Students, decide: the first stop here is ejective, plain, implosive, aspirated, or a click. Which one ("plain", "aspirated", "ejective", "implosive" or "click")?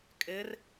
ejective